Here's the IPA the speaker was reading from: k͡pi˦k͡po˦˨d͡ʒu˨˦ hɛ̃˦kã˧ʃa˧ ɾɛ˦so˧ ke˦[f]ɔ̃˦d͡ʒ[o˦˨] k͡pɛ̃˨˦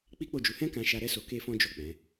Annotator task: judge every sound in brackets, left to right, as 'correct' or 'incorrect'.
correct, correct

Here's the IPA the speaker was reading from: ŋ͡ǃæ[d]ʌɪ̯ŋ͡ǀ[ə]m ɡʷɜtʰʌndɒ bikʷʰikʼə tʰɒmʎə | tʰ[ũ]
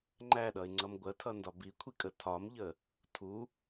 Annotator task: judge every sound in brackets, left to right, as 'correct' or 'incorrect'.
incorrect, incorrect, incorrect

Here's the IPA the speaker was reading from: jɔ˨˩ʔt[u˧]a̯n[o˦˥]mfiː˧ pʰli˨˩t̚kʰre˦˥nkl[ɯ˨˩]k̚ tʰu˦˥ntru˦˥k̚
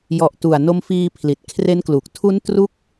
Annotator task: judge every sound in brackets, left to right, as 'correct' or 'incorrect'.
incorrect, incorrect, incorrect

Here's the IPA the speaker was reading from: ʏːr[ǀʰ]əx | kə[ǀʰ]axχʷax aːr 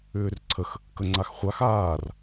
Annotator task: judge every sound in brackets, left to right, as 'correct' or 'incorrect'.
correct, incorrect

